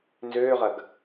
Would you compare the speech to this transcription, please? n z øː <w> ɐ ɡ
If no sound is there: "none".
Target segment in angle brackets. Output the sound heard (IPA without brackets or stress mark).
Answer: ʁ